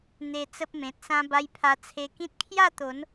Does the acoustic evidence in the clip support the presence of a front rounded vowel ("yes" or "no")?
no